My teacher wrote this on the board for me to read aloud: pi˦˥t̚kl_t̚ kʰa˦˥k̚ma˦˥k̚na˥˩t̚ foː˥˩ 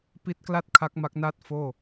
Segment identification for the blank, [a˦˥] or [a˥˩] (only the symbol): a˥˩